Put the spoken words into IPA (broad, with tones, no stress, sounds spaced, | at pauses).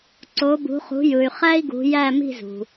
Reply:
ǀ o˨˦ b ṳ˨˦ χ ṳ˨˦ j ɯ˨ y̯ χ æ˥ i̯ ɡ ṳ˨˦ j æ˥˧ m i̤˥˧ z ṳ˨